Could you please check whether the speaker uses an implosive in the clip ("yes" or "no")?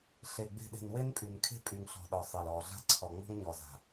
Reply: yes